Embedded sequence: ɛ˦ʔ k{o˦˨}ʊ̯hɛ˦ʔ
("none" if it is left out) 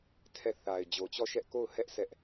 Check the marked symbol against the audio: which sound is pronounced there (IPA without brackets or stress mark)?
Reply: o˦˨